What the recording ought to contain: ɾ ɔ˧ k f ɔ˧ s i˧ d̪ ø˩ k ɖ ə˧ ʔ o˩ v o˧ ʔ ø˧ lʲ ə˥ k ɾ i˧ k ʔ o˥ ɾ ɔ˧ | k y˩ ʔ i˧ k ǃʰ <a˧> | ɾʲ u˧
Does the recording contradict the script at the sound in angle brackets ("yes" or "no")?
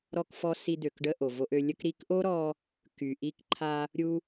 no